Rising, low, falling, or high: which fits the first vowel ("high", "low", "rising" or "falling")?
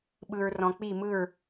low